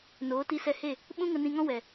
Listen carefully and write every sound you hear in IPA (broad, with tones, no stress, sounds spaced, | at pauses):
n oː˨˦ t i˧ s ɛ˧ h e˦˨ | ɓ ũ˦ ŋ ə˧ n ĩ˧ ŋ ɔ̃˦ w ɛ˨